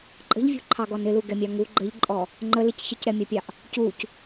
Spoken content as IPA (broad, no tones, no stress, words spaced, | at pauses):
ǃʼə̤ʎvʲṳǃʰɑɡɔn ɪluɡɛmʲɑ ŋu ɡ͡ǃəʎǃʼɔ | ŋ͡ǃəlɪc çɪcɾɛmʲɑpʲɑʔ | cuc